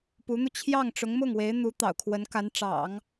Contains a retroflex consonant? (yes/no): yes